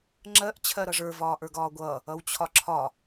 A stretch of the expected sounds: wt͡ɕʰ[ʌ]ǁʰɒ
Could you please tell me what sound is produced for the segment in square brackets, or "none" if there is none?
ɒ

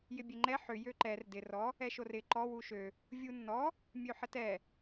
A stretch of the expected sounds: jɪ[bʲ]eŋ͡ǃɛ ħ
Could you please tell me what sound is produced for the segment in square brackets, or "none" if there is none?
bʲ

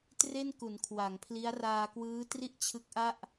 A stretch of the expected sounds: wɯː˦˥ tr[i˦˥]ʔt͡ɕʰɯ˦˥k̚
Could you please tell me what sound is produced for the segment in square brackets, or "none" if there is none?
i˥˩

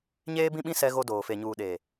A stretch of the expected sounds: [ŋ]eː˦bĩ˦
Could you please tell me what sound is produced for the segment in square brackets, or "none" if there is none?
ɲ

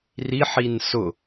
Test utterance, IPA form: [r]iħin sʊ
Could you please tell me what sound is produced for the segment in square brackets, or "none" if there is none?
r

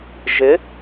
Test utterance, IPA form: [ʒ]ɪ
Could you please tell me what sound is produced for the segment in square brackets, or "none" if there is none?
ʒ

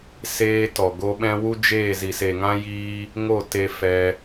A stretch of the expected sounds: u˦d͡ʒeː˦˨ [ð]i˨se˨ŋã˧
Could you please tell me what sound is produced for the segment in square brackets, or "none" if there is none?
z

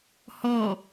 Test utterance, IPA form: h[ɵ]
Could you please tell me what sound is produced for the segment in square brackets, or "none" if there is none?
ɔ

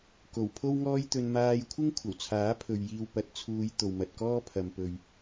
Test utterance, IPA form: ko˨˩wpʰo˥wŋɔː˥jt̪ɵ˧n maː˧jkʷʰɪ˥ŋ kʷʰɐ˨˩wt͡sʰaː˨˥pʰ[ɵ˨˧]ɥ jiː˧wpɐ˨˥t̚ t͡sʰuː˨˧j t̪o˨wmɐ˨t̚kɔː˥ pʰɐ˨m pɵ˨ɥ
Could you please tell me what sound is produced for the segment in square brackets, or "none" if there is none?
ɵ˨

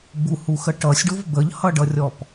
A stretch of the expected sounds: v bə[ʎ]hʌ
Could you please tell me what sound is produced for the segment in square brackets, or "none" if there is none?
ʎ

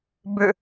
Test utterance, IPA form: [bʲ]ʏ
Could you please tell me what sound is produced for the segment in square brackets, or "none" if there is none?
b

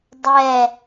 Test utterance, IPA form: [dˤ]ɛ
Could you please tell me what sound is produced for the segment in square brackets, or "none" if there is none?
dˤ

